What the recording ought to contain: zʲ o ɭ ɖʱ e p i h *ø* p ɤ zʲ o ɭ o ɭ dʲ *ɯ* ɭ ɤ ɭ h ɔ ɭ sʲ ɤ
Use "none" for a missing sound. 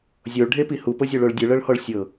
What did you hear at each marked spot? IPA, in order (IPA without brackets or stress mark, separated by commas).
u, ɯ